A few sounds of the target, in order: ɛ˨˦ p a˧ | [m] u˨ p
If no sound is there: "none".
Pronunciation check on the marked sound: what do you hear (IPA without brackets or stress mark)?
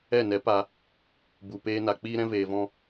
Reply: b